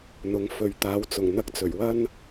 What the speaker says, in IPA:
n̪ ʊ˨˧ ŋ f ɵ˨ ɥ t̪ aː˨˥ w t͡s ʊ˨˩ ŋ n̪ ɐ˧ k̚ t͡s ɵ˨˩ ɥ w ɐ˥ n

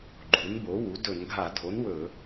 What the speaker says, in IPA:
ɡ͡ǃ u˩˥ n b o˩˥ w u˩˥ d ɵ˧˩˧ n ɡʱ a˧˩˧ dʱ o˩˥ n w ɵ˧˩˧

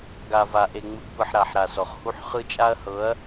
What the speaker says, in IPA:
ɡ a˨ v a˨ ʔ e˨ ŋ͡m ɯ˨ ɡ p ɯ˨ ħ ɾ a˨ ħ ɾ a˨ s ɔ˨ χ h u˦ ħ χ ɯ˦ t͡ʃʼ a˦ ɐ̯ h ɤ˨˦ ɐ̯

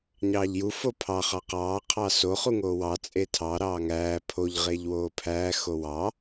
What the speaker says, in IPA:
ɲ ɑː ʎ j u f o pʰ ɑ χ ɑ q ɑː qʰ ɑ s o χ u ŋ oː w ɑ t͡sʼ e tʰ ɑ ɾ ɑː ŋ æː pʰ o ʎ ʁ e ʎ w oː pʰ æː x o w ɑ

